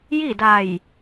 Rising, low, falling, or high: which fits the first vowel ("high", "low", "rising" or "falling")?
falling